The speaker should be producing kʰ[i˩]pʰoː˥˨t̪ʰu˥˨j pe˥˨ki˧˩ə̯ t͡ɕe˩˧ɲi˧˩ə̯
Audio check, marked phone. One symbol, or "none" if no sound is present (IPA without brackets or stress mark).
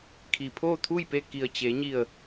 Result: i˩